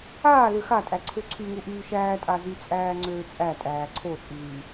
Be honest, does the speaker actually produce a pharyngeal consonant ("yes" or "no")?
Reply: no